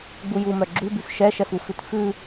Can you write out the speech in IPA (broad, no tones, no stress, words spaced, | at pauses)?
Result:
ɡ͡bujumœ ɡ͡ǁʉbyf ʃɛʃɛfufʉt fʉ